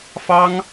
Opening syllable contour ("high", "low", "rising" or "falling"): high